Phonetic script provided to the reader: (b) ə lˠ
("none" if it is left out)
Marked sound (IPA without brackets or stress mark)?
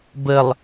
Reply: b